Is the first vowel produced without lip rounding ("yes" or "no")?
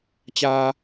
yes